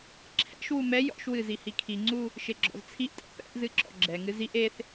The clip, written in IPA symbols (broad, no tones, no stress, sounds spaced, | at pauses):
ǁʰ ɛ̰ ʃ w u m ɛ j ɔ̰ ʃ w ɨ z i h i kʰ i ŋ͡ǀ u | ʃ e ɡ͡ǁ ɔ̰ z t͡sʰ i ʔ tʼ ɛ̰ p ɛ̰ ʔ z ɨ ǁ ɔ̰ ɡ͡ǁ ɛ ŋ ɨ z i ʔ e θ